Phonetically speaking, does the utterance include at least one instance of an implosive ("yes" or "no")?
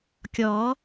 no